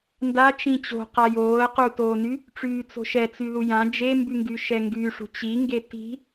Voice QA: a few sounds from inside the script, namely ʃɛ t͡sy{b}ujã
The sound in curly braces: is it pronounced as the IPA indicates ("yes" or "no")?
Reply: no